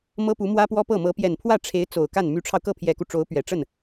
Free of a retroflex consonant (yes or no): no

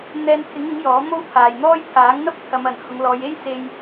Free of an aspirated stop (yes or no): no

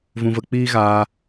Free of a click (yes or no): yes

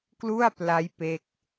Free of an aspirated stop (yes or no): yes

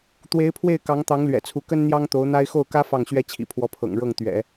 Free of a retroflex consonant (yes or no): no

